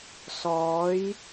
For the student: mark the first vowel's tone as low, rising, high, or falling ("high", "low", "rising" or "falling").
rising